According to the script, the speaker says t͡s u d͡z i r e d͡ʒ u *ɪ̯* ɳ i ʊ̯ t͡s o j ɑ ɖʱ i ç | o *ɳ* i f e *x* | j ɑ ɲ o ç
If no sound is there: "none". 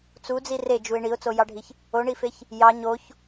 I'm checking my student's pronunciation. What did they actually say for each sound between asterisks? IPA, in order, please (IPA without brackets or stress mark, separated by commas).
ɪ̯, ɳ, ç